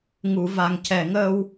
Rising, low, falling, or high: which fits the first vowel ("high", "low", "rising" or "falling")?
low